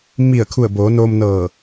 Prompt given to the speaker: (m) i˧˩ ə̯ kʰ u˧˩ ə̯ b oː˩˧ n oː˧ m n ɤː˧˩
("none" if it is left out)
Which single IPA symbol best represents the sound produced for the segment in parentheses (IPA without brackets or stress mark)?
m